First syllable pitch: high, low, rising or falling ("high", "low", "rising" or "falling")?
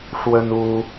high